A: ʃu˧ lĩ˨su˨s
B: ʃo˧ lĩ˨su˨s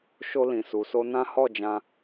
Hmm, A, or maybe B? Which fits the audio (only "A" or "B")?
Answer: B